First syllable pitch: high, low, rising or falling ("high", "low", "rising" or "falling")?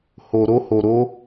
low